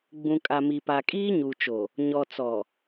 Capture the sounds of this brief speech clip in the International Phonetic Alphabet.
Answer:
ɡ͡b ũ˨ kʼ a˨ m i˨ p a˨ kʼ iː˦ ɲ u˨ t͡ʃ o˨ | ɲ ɔ˨ t͡s ɔ˨

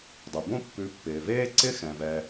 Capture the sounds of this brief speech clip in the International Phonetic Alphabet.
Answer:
dˤ ʉ˩ b õ˥ pː ʉ˨ pː ɪː˩ v eː˦ ǀ ɪ˦ x ɛ̃˩ v ɛ˨

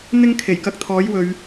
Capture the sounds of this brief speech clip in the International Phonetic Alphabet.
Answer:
n̪ ɪ˥ ŋ kʰ e˨˩ j k ɐ˧ k̚ t̪ʰ ɔː˨˥ j w ɵ˨˧ ɥ

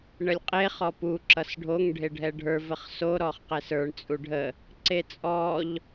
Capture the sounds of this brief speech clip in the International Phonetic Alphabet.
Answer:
ɳ ə lʲ qʼ e χ ɔ p u ǁ ʌ s ɖʱ o ŋ ɖʱ e ɖʱ ɛ ɖʱ ə˞ v ə χ s o ɾ ɔ χ q ɛ s ə˞ ɳ t͡sʼ u ɖʱ ə | ǀ e t͡sʼ ɔ ʎ

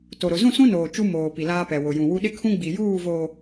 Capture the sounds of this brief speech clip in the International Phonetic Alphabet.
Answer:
t o˨ ɾ ʊ˨ z ũ˦˨ s ũ˦ n oː˨ t͡ʃ u˦ m oː˨ p i˨ l aː˦ p ɛ˨ w ʊ˨ j ũ˨ w u˦ ɗ ɪ˦ kʰ ũ˦ ɡ͡b i˨ j uː˦˨ v oː˨

